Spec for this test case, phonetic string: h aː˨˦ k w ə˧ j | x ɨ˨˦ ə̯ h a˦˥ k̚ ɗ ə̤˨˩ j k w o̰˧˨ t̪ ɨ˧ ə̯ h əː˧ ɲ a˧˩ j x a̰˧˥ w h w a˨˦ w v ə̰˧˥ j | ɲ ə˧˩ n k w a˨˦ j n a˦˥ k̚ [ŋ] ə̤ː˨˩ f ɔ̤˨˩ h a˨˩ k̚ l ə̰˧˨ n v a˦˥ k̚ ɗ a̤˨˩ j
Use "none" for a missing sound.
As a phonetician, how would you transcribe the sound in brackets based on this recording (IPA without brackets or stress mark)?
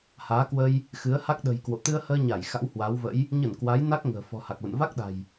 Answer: ŋ